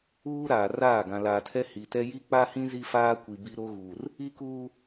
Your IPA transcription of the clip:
uː˦ ɾ aː˨ r aː˦˨ ɡ ã˨ l aː˨ tʰ ɛ˦ h i˨ t ɛ˦ j i˦ k͡p a˦ h ĩ˦ z i˦ f aː˦ kʷ i˨ b i˦ ɾ o˦ ɣ uː˨ r | i˦ k uː˦

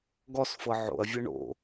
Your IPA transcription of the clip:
ɡ ɔ s f ɤ ʕ o̰ ɐ̯ vʲ ɤ ɳ o̰

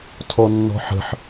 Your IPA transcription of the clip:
tʰ ɔ nː ɔ̤ ħ ə̤ ħ

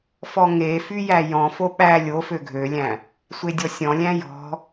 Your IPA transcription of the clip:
f ɔ ŋ e f y j æ j ɔ̃ f o ɓ æ lʲ o f ø ɡʱ ø lʲ æ̃ | sʷ e dʲ ɔ sʲ ɔ̃ lʲ æ̃ j ɔ̤

